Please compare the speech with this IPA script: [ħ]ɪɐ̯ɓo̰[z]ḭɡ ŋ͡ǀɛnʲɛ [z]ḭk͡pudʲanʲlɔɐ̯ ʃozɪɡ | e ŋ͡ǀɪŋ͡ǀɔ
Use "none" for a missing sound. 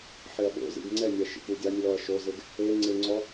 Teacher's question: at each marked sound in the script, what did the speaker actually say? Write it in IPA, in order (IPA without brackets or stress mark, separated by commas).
ħ, z, ʃ